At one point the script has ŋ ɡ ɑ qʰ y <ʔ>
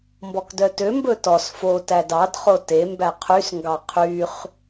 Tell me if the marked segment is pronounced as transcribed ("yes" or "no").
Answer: no